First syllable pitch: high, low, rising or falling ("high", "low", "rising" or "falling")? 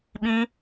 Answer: high